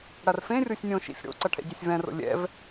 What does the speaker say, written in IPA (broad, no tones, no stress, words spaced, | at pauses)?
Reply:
ɽarfẽrʲosʲ nʲõʃḭsʲ ɽo̰ǀʌ ʈʰɛ̰ɟesʲvɛ̃ro̰ lʲɛ̰v